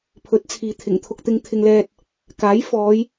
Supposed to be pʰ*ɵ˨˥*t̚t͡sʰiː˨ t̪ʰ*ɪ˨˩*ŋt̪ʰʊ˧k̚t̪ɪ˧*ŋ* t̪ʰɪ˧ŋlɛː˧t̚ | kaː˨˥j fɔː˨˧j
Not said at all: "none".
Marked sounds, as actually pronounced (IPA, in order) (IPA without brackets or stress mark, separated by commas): ɵ˨˥, ɪ˨˩, ŋ